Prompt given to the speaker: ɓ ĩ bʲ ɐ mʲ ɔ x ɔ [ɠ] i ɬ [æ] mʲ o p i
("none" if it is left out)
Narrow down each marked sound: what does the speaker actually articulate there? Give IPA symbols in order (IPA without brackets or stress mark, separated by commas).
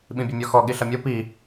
ɠ, ɐ